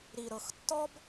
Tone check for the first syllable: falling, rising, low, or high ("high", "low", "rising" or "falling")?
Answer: low